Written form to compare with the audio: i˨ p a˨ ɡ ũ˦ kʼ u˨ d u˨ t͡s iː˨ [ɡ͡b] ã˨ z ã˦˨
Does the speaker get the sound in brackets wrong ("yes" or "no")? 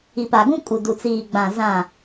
no